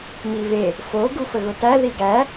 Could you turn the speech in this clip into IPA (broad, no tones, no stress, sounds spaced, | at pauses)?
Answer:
m i β e | f o ɡ u f ə ɣ ʊ t æ ð i ɡ æ